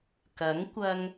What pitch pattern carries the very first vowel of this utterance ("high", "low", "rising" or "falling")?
rising